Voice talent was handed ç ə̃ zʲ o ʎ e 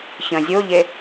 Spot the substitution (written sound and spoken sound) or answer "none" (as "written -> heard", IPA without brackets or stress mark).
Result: none